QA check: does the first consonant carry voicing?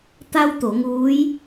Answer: no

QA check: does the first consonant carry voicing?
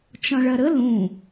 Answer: no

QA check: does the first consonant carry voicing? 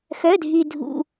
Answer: no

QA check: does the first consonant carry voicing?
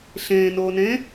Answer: no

